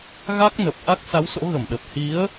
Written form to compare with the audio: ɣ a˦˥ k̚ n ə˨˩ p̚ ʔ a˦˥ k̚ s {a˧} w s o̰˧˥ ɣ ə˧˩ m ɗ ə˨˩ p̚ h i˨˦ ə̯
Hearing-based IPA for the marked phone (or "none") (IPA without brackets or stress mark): a˨˦